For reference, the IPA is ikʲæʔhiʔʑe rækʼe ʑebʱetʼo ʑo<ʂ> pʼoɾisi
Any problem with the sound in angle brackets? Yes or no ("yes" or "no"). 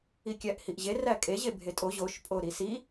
yes